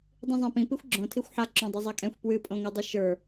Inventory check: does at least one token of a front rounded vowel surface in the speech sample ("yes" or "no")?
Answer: no